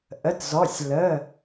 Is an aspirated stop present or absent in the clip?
absent